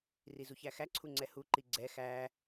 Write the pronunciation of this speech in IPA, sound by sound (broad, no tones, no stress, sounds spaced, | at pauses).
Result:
r i z u ç æ x æ ǀʰ u ŋ͡ǀ ɛ h u ǃ i ɡ͡ǀ ɛ x æ